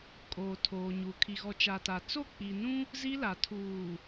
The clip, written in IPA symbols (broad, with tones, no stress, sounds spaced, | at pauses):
kʼ oː˨ tʰ oː˨ ɲ u˨ kʰ i˨ ɣ ɔ˨ t͡ʃ a˨ t a˨ t͡s o˦˨ k͡p i˨ n ũ˦ | z i˦ l a˨ tʰ uː˨